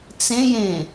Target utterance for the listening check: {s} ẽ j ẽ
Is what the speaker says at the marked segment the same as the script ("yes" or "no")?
no